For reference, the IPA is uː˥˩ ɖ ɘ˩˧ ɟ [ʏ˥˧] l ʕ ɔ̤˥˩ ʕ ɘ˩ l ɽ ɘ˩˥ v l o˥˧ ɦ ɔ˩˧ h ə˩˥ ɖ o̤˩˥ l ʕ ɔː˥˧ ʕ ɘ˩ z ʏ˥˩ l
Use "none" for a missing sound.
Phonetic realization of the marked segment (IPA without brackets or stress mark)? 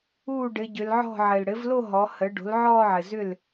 ʏ˩˧